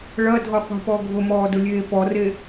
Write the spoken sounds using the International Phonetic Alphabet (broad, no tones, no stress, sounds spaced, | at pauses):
ɭ ɐ dʱ ɔ qʷ e̤ p ɔ ɡʱ ʊ m ɔː d ʊ lʲ eː p ɔ r e